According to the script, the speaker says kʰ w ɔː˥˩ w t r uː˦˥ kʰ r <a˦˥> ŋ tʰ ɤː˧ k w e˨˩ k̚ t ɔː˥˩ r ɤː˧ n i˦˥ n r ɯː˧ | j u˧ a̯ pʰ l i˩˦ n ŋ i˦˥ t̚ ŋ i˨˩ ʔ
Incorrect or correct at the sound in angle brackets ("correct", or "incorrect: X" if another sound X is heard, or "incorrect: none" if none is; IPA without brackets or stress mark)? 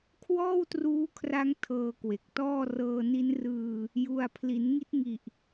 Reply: correct